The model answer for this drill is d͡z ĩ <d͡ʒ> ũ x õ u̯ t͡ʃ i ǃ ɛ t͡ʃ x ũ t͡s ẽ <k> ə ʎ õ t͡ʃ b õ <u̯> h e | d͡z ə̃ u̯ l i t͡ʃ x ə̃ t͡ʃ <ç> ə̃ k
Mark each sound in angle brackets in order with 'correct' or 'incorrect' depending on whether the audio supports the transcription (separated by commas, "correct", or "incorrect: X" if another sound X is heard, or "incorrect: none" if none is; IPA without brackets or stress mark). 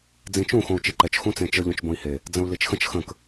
incorrect: t͡ʃ, incorrect: t͡ʃ, incorrect: i̯, incorrect: x